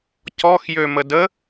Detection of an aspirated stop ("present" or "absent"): absent